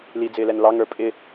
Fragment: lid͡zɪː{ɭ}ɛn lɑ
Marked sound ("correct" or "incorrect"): incorrect